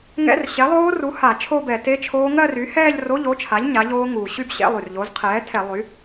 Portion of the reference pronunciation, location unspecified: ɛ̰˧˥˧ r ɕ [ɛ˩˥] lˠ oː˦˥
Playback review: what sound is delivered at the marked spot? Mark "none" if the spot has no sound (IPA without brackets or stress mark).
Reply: ɛ˩˥